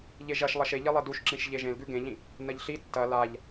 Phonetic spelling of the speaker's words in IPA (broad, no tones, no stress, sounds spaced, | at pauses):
ʎ e ʒ ɐ ʃ lˠ ɐ ʃ e ʎ e lˠ e d u ʃ ǁ ĩ ʃ ʎ e ʒ ẽ l ɡ ʉ ɡ ẽ ʎ ĩ | n ɐ ʎ ɬ i tː ɐ l a ʎ